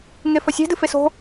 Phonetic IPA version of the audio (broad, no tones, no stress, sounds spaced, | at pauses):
ŋ e f ɐ sʲ e̤ d ɨ f e s o̤